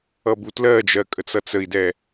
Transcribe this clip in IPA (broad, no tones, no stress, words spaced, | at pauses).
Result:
ʌbutlɜd͡ʒɜ kʼət͡sʌt͡səi̯dɛ